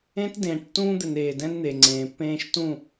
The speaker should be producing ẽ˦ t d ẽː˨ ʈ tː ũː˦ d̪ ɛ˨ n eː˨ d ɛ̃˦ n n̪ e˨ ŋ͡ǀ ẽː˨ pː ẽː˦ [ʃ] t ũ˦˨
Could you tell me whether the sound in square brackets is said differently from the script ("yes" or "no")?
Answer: no